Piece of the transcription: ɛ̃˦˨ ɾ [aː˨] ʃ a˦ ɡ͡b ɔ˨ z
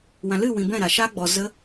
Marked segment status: incorrect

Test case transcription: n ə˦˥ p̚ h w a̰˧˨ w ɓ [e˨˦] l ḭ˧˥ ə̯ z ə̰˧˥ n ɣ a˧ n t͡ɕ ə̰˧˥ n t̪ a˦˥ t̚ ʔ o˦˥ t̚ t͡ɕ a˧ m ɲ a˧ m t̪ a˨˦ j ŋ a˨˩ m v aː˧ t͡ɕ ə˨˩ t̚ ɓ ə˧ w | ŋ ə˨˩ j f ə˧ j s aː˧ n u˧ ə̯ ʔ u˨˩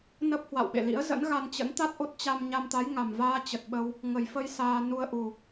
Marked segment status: incorrect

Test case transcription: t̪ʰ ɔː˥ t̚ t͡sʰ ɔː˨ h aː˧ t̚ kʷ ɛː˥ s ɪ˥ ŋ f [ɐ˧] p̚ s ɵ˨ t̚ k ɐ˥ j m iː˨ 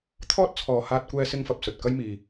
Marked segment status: correct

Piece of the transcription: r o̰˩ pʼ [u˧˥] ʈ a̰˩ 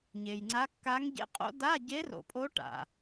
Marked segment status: incorrect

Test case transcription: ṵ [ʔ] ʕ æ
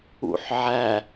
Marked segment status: incorrect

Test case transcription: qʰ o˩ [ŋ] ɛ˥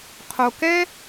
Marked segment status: incorrect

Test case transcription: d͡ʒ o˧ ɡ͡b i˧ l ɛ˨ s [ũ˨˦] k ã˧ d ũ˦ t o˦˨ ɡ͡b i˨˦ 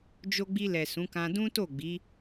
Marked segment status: correct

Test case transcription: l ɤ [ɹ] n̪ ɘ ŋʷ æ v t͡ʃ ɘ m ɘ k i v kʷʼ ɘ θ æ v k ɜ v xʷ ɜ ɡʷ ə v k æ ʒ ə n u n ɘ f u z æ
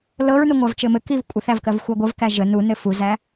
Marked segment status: correct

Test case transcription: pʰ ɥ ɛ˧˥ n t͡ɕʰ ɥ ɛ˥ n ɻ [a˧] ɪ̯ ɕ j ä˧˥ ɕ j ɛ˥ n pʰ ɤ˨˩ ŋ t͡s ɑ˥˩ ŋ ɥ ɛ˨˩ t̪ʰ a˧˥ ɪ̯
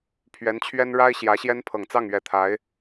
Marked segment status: incorrect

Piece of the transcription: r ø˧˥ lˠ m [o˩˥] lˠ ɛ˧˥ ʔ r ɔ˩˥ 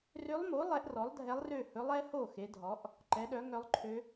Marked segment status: correct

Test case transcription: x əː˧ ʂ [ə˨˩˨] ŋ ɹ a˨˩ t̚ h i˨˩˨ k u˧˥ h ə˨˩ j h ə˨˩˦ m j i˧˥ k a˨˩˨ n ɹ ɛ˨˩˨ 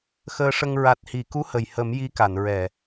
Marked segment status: incorrect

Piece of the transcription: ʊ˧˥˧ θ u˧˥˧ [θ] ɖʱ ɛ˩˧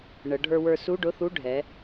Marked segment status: incorrect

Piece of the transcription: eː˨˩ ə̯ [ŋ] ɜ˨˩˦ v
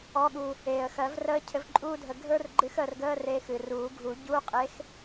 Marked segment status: incorrect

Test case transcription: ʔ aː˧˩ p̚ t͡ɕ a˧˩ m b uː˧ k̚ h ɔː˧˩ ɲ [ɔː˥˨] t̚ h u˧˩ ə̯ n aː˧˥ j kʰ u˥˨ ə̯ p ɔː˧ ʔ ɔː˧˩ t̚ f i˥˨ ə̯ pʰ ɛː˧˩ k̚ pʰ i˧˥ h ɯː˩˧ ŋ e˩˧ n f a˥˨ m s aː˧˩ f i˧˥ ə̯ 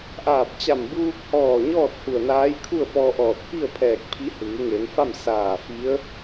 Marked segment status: correct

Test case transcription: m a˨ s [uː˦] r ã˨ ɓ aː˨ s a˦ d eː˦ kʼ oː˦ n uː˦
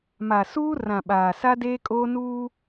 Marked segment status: correct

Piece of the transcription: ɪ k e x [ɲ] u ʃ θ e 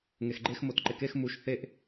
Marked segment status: incorrect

